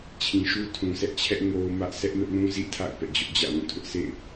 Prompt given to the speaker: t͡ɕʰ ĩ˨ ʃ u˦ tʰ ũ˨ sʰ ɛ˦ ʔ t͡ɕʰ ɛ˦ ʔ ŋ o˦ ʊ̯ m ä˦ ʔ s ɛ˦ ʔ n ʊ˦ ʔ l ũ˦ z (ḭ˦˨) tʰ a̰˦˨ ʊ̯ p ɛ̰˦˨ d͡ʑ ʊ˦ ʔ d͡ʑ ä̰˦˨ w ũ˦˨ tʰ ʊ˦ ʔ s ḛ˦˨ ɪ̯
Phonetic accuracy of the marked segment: correct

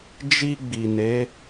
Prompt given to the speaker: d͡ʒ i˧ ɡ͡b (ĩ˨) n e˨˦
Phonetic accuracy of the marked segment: incorrect: i˨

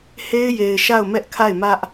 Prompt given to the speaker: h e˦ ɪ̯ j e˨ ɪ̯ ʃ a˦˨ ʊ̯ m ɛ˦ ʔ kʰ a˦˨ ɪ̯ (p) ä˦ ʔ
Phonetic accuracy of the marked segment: incorrect: m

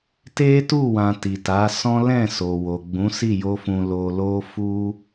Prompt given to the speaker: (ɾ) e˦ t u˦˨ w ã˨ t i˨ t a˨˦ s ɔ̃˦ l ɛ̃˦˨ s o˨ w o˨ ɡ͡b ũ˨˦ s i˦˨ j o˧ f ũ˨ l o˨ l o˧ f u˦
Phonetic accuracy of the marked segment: incorrect: t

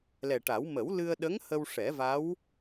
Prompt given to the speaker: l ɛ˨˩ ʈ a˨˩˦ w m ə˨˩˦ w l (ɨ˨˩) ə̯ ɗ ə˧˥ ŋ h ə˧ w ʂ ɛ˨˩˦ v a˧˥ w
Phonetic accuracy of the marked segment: incorrect: ɨ˧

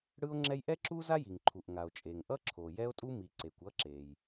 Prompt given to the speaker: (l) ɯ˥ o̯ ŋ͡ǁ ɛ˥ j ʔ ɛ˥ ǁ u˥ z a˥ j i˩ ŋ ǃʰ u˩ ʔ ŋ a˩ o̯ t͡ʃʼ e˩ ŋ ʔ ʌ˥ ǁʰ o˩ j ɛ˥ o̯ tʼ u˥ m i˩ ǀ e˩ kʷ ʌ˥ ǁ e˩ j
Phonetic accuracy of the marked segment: incorrect: ɽ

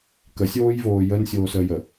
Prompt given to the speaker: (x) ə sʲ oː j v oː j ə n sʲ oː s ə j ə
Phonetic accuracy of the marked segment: incorrect: k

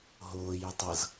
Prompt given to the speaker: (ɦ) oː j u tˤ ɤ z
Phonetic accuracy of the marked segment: correct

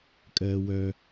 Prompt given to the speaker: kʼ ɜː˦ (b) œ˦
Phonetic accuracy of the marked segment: incorrect: w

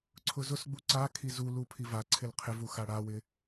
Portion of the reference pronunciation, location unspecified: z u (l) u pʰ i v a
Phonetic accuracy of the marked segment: correct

